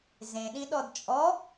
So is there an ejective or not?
yes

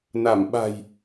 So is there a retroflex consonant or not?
no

